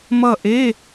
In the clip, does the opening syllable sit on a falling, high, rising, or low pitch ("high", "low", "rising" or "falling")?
falling